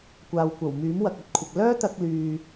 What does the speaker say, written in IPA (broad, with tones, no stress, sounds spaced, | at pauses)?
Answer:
kʷ aː˨ w kʷ ɐ˨˩ w m yː˨˥ m w ɐ˨ k̚ ɐ˨ t̚ kʷʰ ɪ˨ k̚ l œː˥ t̪ ɐ˥ k̚ l yː˧